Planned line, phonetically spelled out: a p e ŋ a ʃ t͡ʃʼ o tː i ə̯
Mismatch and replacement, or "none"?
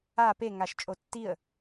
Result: none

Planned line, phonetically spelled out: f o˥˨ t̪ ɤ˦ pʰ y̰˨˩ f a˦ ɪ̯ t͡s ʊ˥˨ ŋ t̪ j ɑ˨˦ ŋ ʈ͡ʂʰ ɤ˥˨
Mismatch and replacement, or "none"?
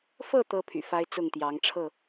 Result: o˥˨ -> ɤ˥˨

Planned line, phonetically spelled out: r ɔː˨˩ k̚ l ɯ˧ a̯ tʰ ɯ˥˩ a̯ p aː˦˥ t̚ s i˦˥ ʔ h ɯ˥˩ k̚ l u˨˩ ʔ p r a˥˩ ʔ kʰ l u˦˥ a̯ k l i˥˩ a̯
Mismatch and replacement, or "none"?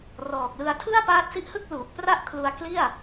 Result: none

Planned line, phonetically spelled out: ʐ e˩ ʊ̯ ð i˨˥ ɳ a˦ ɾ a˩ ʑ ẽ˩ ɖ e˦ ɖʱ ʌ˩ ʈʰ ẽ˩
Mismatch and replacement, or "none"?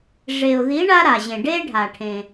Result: ʌ˩ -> a˩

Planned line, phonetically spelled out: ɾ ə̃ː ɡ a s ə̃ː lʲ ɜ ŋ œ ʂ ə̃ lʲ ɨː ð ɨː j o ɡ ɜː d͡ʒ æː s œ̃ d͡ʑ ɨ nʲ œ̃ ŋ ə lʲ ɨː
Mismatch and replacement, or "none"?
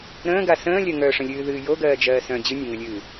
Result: æː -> ɜː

